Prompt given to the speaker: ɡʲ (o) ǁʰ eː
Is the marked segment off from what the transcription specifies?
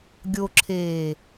no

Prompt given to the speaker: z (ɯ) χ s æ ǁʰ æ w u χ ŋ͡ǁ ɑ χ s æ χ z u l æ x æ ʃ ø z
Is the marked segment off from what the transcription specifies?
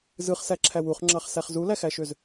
no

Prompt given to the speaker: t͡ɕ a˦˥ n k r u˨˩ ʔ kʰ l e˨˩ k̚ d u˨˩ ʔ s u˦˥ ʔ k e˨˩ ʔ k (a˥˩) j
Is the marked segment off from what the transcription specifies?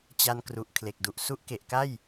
no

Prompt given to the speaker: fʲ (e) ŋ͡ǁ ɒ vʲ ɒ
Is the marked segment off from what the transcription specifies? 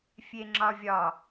no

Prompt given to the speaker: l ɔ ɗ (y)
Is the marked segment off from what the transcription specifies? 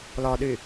no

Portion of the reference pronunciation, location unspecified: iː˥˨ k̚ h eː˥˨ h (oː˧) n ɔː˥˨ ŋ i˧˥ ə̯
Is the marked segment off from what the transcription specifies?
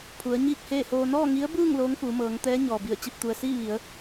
no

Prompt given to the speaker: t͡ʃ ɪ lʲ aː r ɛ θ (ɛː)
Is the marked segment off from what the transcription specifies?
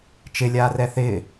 yes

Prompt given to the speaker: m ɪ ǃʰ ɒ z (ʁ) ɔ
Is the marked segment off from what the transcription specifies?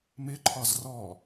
yes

